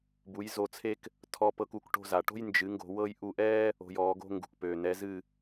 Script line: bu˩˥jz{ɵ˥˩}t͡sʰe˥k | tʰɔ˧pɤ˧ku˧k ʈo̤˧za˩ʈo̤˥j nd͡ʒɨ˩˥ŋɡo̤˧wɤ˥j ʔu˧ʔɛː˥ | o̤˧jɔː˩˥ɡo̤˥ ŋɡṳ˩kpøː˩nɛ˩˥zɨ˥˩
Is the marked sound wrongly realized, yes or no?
yes